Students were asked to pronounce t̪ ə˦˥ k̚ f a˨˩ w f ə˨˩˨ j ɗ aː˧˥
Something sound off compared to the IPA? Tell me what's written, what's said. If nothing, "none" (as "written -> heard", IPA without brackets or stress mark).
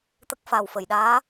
none